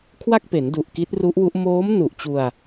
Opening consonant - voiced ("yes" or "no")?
no